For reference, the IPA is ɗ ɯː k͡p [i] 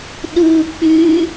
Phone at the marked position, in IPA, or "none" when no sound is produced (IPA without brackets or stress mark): y